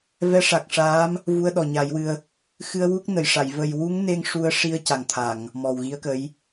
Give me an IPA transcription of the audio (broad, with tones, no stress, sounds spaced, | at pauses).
v ɛ˧˥ ʂ a˨˩ k̚ ʂ aː˧˥ m | v u˧ ə̯ ɗ ɔ˨˩ ɲ a˨˩˦ j w ɨ˧ ə̯ | x ɨ˧ ə̯ w u˦˥ k̚ n ə˨˩ j ʂ a˨˩˨ j v ə˨˩ j w u˧˥ ŋ n e˧ ŋ ʂ u˧ ə̯ ʂ i˧ ə̯ c a˨˩ ŋ t̪ʰ a˨˩˨ ŋ | m ɔ˨˩ w ɣ i˧˥ ə̯ k ə˧˥ j